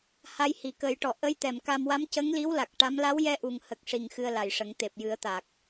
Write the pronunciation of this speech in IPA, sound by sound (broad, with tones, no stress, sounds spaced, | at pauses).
h a˧ j h i˨˩ k ə˨˩˦ j ʈ ɔ˨˩˨ ʔ ə˧˥ j t̪ ɛ˨˩˨ m k a˧ m w a˧˥ m c ə˧˥ ŋ l i˧˥ w l a˨˩ k̚ ʈ a˧˥ m l a˧˥ w j ɛ˧ ʔ u˨˩ ŋ h ə˨˩ k̚ ʂ i˨˩ ŋ x ɨ˧ ə̯ l a˨˩ j ʂ ə˨˩˦ ŋ t̪ e˨˩ p̚ j ɨ˨˩˦ ə̯ t̪ a˨˩ k̚